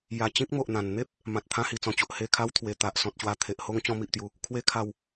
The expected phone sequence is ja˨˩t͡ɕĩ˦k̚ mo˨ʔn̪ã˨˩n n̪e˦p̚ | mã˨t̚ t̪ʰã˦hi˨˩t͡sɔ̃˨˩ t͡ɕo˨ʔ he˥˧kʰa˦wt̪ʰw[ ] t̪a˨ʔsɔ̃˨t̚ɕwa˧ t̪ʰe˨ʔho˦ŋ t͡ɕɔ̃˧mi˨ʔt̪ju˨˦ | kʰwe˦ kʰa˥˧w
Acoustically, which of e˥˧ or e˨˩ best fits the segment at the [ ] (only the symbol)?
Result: e˨˩